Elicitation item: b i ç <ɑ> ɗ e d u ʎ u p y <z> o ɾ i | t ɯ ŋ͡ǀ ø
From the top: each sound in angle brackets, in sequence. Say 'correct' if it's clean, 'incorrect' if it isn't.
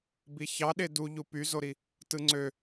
correct, correct

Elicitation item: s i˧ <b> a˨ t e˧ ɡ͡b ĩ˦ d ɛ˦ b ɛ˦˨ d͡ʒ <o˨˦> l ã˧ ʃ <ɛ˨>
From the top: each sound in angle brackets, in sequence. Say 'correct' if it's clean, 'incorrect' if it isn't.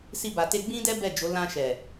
correct, correct, correct

